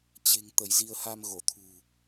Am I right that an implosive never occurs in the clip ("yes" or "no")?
yes